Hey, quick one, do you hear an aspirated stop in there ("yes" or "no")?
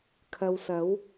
yes